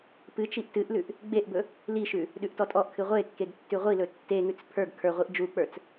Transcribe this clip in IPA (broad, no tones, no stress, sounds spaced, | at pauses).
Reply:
p ɨ t͡ʃ i ʔ t ɨ ʔ l ʉ ʔ | ɡ͡b e ʔ b ɵ | l i ʃ ʉ | ɗ ʉ ʔ t ɔ tʼ ɔ ʔ kʰ ɨ ʁʷ e kː e ɡ tː ʉ ʁʷ i l ɵ tː e ŋ ʉ t͡s pʰ ə˞ ɡ kʰ ə˞ ʁʷ i ʔ d͡ʒ u k͡p ə˞ t͡s